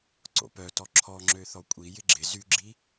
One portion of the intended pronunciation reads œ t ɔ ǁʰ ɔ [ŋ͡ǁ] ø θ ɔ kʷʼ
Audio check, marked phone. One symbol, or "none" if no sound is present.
ŋ͡ǁ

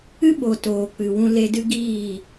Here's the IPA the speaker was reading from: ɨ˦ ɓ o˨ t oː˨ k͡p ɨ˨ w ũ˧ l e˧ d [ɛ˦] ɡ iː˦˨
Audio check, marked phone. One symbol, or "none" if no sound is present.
ɨ˦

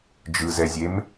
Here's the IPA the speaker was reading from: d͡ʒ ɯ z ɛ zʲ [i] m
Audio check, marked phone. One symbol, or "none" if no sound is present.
e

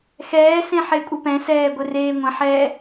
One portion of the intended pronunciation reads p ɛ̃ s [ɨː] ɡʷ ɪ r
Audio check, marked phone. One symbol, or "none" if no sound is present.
ɛː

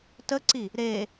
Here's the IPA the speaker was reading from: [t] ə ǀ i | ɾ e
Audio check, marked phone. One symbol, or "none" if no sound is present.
t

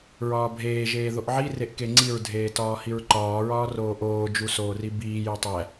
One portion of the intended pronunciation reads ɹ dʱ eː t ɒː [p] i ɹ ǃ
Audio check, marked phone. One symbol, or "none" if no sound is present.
h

